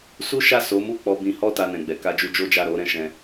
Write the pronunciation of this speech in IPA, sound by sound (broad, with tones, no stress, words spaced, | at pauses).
su˦ʃa˦˨ so˨˦mu˦˨k͡pɔ˧ bĩ˧hɔ˦ ta˧nɛ̃˨ɡ͡bɛ˨ ka˧d͡ʒu˧ d͡ʒo˦d͡ʒa˦˨ɾo˨˦ɾɛ̃˧ ʃɛ̃˧